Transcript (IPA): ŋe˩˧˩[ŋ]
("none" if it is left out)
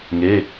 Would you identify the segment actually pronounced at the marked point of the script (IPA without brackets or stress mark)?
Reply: none